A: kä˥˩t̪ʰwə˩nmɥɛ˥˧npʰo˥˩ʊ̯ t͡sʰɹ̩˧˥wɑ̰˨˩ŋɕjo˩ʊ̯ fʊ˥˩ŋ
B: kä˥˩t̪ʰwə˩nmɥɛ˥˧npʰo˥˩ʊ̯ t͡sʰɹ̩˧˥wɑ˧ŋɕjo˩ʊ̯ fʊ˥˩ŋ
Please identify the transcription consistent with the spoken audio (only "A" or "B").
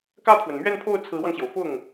B